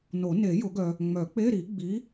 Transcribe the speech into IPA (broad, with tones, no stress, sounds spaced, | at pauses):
n o˨˩˦ n e˨˩˦ j ʊ˨˩˦ ɡ œ˨ | ŋ͡m œ˨˩˦ k͡p e˧˥˧ ɾ i˨˩˦ ɡ͡b i˨˦